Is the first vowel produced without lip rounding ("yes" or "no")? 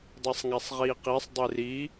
yes